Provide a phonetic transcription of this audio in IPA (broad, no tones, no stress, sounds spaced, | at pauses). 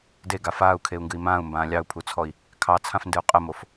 d e ɡ a f aː u̯ kʰ e u̯ ŋ ɡ ɨ i̯ m ãː u̯ m b ãː lʲ ɑ u̯ pʰ u t͡sʰ ɔ i̯ | kʰ ɑ t͡sʰ ã f n d ɨ u̯ qʼ ə m o f